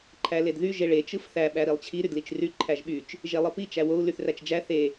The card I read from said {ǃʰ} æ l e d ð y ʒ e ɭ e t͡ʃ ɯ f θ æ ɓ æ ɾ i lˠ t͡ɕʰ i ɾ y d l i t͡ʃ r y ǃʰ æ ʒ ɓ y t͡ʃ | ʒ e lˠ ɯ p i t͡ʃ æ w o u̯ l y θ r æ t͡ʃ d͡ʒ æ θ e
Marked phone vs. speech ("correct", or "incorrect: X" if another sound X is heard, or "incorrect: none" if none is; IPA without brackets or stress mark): correct